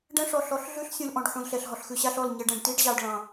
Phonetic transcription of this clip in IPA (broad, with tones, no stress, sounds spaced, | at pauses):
ɖ ɛ̃˦ ʂ ɔ˨ ɬ ɔ˨˦ ɬ ɮ ʉ˦ ɬ sʲ ũ˨ l ʔ ɔ̃˨ ɖ ħ ũ˨ l ɬ ɛ˨ ɬ ɦ ɔ˨ ɬ x ʉ˨ ɕ a˦ ɬ ɔ˦˨ l ɲ ɛ˨ ɖ ɛ̃˨ ɖ t i˦ ɖ ʑ ɑ˨ ɖ ɭ ɑ̃˨